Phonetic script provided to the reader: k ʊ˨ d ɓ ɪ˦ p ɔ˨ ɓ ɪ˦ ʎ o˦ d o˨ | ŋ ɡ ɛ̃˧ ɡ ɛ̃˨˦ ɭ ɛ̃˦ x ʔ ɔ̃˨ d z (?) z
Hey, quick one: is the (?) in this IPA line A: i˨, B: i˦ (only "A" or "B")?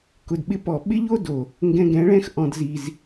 A